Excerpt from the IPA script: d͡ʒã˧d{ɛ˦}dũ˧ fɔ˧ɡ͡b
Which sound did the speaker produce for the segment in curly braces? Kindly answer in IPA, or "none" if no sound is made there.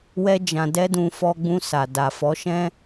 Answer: ɛ˦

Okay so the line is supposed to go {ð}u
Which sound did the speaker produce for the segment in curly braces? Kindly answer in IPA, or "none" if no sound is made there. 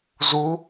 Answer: z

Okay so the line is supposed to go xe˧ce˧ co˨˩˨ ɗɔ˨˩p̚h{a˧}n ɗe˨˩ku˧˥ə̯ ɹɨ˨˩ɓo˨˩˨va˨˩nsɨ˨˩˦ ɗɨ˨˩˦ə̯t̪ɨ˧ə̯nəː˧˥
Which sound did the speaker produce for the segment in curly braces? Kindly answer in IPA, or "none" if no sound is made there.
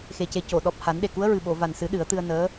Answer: a˨˩˦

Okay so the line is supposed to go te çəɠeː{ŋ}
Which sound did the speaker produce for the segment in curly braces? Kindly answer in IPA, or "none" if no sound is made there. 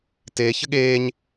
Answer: ɲ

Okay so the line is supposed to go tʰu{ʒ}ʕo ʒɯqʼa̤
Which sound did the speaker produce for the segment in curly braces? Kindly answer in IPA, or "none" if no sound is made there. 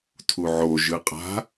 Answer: none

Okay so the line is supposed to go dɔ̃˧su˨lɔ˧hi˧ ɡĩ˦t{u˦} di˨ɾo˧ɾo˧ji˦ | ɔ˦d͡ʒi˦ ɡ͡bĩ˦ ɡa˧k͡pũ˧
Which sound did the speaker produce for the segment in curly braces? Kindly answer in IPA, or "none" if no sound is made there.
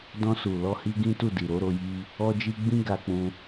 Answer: u˦˨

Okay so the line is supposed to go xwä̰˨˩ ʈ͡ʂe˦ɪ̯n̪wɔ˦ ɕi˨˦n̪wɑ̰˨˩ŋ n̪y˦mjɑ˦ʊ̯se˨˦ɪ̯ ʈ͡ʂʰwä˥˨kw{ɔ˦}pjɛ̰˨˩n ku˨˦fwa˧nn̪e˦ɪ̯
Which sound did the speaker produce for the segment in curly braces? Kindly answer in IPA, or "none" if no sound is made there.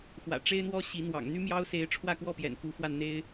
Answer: ɔ˥˨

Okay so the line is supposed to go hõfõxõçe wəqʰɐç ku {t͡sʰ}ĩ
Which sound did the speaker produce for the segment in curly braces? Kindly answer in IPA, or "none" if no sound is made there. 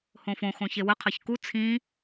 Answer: t͡sʰ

